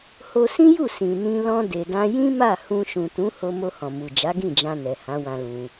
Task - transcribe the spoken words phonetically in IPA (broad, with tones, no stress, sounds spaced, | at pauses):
h o˧ s ĩ˦ j u˦˨ s ĩ˨ n ĩ˧ l ɔ̃˧ d e˨ d ã˧ j ĩ˦ m a˦˨ h ũ˧ ʃ ũ˨ t ũ˨˦ h o˧ m o˧ h ɔ̃˨ m u˨ d͡ʒ a˨˦ ɡ ĩ˦˨ d͡ʒ ã˧ n ɛ˨ h ã˨˦ w ã˧ l ũ˧